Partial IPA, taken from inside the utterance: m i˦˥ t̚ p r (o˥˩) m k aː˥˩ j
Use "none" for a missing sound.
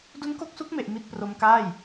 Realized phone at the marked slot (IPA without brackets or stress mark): o˦˥